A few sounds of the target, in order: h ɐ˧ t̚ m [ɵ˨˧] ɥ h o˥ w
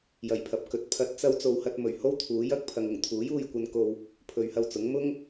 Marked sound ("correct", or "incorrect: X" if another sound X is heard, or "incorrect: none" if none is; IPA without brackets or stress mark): incorrect: ɵ˨˩